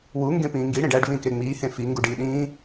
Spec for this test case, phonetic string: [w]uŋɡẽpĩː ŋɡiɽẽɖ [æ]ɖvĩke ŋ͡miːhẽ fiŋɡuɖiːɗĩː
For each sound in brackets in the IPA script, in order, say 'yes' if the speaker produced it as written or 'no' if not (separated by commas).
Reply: yes, yes